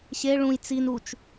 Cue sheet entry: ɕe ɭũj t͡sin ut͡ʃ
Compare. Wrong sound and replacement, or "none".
none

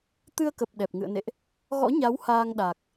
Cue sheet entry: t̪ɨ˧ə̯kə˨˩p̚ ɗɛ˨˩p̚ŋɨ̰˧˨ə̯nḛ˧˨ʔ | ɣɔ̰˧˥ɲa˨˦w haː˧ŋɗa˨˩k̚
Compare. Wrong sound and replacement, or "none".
none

